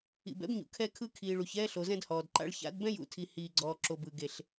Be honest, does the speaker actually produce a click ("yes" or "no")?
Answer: yes